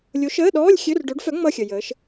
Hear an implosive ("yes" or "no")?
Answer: yes